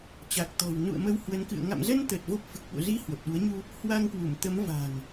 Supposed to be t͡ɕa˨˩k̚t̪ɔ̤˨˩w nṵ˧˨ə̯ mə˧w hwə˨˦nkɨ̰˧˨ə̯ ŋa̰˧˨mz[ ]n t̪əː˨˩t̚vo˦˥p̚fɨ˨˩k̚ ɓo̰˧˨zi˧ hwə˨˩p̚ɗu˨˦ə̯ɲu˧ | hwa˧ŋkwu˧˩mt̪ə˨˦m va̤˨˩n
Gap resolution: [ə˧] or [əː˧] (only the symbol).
ə˧